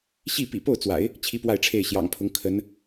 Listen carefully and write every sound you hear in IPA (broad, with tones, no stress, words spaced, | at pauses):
ɕi˥˩pḭ˨˩ po˥˩ʊ̯t͡swa̰˨˩˦ɪ̯ | t͡ɕʰi˥pwa˥˧ɪ̯ʈ͡ʂʰe˥˩ɪ̯ ɕjɑ̰˨˩ŋpʰʊ˧˥ŋ kʰə˧˥n